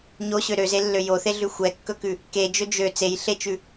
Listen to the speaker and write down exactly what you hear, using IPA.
ɲ o ɕ ø ɾ ø z e lː ø j o θ e ɮ ʉ xʷ ɛ kː ɵ k ʉ | k e d͡ʒ ɵ d͡ʒ ø t͡s e j ɬ e t͡ʃ ʉ

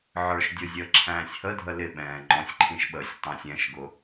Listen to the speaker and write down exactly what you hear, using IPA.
ʕ ə˞ ʃ dʲ ʊ zʲ əː ǁʰ æ̃ː sʲ h ə dʱ ə l ɪ ɓ ɛ̃ː ŋ͡ǃ ɔ̃ sʲ ǃʰ ĩ ʃ ɓ əː sʲ tˤ æ̃ sʲ ɛ̃ ʃ ɡ ʊ

